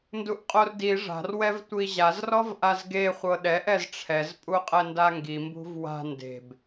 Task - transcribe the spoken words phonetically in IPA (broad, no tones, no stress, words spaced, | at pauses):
nduʔqʼordi ʐa̤r wɛvtʷiʑaz rɔvʔazɡe χʷɤɗɛʔ ɛzʈ͡ʂʰɛz pʼuqʼɛndaŋɡi mbṳvwa̤ nde̤b